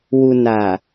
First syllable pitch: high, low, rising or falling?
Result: low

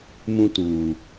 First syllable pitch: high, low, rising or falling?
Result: high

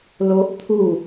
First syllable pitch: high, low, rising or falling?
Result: high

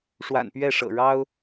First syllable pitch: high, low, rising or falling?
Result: low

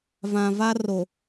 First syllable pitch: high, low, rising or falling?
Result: low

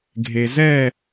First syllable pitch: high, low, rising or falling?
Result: low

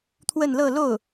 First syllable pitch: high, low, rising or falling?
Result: falling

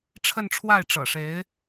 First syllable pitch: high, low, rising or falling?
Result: falling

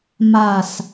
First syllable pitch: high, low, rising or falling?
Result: falling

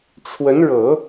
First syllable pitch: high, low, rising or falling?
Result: rising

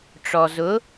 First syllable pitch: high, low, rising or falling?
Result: low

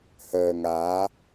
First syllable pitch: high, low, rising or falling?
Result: low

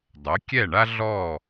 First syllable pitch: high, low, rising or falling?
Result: rising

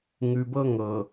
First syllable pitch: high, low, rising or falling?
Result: low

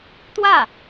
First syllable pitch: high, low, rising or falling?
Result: falling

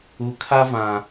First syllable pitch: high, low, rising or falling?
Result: low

